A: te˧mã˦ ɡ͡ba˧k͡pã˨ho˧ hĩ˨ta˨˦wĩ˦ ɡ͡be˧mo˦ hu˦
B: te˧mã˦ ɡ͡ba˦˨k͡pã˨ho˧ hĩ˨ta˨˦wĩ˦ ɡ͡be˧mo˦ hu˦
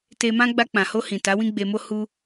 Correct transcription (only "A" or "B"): A